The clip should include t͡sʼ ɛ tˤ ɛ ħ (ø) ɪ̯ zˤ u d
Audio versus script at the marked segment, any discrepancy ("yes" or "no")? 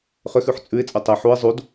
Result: yes